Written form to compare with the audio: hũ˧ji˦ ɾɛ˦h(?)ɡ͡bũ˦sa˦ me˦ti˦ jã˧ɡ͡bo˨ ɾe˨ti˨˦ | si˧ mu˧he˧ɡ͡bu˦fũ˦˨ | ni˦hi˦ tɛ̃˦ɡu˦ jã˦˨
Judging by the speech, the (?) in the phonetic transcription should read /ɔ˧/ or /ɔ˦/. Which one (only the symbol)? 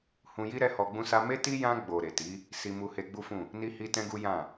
ɔ˧